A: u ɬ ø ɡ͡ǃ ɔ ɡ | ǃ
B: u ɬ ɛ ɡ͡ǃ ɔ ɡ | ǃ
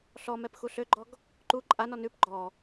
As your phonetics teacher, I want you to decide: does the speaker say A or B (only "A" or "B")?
A